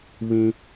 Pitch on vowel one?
high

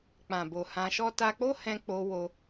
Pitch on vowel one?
low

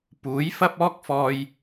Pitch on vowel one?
rising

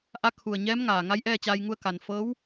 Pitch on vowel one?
rising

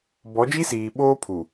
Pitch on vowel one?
rising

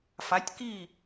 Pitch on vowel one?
rising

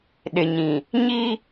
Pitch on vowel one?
low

